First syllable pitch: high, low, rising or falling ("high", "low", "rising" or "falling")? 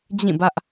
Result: falling